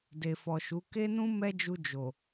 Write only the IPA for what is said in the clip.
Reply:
d e˨ f ɔ˨ ʃ u˨˦ k e˦ n ũ˦ m ɛ˦ d͡ʒ u˧ d͡ʒ o˨

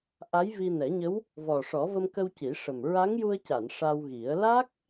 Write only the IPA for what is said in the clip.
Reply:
ʔ a˧˥ j v i˧ n ɛ˨˩˦ ɲ ə˧˥ w | v ɔ˨˩ ʂ ɔ˨˩˦ v ə˧ m k ə˧ w c i˨˩˦ ʂ ə˨˩ m ɹ a˧˥ ŋ j u˧ ə̯ c a˨˩˨ n ʂ a˧ w ɣ i˨˩˦ ə̯ l a˦˥ k̚

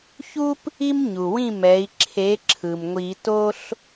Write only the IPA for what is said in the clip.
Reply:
ç u˥ p | i˥ m ɲ u˩ w ĩ˥˨ m ɛ˩˥ i̯ ǁʰ e˩˥ ǁʰ ɯ˩ m ŋʷ i˨˩˦ t o˥ ɬ

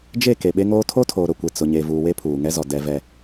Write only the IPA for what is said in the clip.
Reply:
d͡ʒ e˦˨ k e˨ ɓ e˦ ŋ oː˦ tʰ o˦ tʰ oː˨ ɾ ʊ˨ kʷ e˨ t͡s ʊ˨ ɲ e˨ v uː˨ w e˦ pʰ uː˨ ŋ ɛ˦ z ɔ˨ d ɛ˦ v ɛ˦

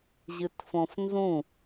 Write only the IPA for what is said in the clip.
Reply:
ʑ ɨ t f õ f n z ũ

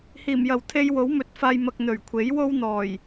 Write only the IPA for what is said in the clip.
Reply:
h iː˨˩ m j ɐ˨˩ w t̪ʰ e˧ j w o˨˥ w m ɵ˨˥ t̚ f aː˧ j m ɐ˧ k̚ n̪ ɵ˨˩ ɥ kʷʰ e˨˥ j w o˥ w n̪ ɔː˨˩ j

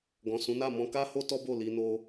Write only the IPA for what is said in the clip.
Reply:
ɡ ɔ̃˨ s ũ˨˦ n a˦˨ m ɔ̃˧ k a˦ h o˦ t ɔ˦ b o˦˨ l i˧ n o˧

